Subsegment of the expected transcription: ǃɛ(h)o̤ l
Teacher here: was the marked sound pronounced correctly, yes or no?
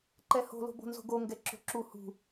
yes